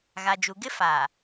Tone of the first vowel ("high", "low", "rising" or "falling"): low